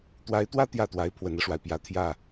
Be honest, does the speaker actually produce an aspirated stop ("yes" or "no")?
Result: yes